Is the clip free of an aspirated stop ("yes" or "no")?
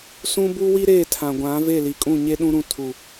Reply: no